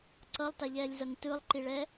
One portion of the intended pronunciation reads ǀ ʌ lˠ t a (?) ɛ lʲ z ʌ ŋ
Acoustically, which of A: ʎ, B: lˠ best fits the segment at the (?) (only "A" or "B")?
A